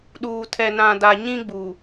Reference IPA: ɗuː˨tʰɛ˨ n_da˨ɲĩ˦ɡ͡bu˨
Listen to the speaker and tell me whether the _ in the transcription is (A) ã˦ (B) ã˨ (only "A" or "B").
B